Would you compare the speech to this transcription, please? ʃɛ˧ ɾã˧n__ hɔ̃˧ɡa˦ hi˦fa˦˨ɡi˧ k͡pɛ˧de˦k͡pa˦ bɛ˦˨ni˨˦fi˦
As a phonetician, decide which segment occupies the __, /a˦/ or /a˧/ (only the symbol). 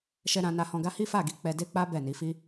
a˧